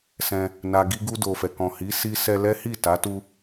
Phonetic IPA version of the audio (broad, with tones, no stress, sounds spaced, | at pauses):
s ɛ̃˧ | n a˨ ɡ i˧ ɡ u˧ d o˨ f ɛ˨ k ɔ̃˨ h i˨˦ s i˦ s ɛ˧ l ɛ˦ h i˦˨ t a˨˦ t u˧